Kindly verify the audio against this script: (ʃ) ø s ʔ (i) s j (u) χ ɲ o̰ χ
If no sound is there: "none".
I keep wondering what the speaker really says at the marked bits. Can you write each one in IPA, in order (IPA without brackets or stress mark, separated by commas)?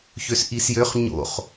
ç, i, ø